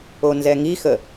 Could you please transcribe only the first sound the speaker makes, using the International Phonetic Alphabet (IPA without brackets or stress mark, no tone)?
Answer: o